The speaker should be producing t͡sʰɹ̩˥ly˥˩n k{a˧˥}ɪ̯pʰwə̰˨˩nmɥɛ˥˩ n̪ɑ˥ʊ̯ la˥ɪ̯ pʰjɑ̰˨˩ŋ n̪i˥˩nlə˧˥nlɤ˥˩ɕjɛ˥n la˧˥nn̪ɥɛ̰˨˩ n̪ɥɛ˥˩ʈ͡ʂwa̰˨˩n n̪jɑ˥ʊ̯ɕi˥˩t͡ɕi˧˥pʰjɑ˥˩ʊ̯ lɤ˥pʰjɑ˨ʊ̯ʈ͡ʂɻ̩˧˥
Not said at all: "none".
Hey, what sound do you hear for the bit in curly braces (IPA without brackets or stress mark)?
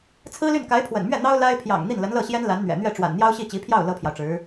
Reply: a˧˥